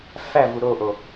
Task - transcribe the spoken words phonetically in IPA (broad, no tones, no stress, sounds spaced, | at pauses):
f æ v u ɾ o ʔ o